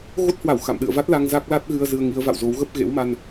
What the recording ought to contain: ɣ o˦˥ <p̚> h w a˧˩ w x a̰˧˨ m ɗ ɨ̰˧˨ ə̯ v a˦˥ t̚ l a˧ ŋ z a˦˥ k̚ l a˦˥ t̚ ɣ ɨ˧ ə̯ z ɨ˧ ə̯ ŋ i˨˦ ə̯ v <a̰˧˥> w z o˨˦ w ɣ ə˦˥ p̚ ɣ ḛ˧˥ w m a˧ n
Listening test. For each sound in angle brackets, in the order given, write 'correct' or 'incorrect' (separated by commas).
incorrect, incorrect